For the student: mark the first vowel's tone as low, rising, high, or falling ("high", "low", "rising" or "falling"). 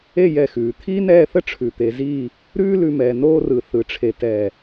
falling